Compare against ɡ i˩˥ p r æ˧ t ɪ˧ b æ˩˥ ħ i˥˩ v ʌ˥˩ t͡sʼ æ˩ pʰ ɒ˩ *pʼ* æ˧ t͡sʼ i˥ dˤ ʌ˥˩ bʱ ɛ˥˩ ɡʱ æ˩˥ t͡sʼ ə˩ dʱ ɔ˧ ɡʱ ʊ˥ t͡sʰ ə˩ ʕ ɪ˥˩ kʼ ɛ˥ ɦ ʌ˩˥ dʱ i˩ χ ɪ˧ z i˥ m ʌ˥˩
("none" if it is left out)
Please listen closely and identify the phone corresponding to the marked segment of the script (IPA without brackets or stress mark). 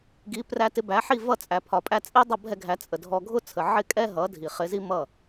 pʼ